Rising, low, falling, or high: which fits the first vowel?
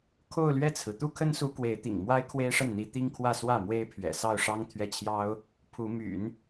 falling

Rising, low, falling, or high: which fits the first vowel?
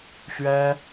high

